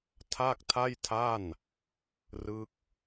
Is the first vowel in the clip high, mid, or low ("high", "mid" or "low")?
low